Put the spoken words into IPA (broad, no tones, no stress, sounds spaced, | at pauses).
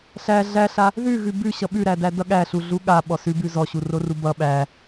ɬ æ ɮ æ ɬ a | ð ʉ ɣ ʉ b ʉ ɕ ʌ ɓ ʉ ɾ æ d æ d ʌ ɠ æ ɬ u ɮ u ɠ a ɓ ɔ s ʉ b ʉ z ɔ ɕ u r o r u b ʌ ɓ æ